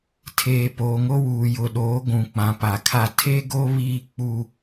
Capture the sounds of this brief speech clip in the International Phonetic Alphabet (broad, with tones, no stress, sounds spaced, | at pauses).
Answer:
tʰ eː˨ p oː˨ ŋ o˦ w uː˨ j ʊ˨ ɗ oː˨˦ ɡʷ ũ˨ k͡p ã˨ p a˨ kʰ a˦ tʰ e˦ ɡ o˦ β iː˦ k͡p u˦